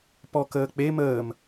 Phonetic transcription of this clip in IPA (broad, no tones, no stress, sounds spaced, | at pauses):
p ɔ k əː k͡p e m əː m